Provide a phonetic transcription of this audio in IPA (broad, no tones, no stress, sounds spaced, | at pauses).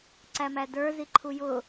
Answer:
ǀ æ m æ d ə˞ z i ǃʰ u j ʊ